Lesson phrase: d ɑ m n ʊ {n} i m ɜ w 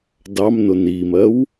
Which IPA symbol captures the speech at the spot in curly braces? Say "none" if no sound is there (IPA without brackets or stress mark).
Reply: n